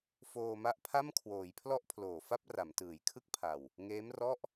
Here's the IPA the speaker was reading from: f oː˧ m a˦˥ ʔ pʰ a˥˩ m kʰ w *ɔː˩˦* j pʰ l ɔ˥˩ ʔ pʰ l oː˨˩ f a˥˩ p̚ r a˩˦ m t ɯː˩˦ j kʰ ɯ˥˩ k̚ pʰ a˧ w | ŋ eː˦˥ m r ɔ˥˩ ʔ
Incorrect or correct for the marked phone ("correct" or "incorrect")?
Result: incorrect